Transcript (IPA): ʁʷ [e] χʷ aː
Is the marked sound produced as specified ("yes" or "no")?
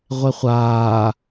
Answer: yes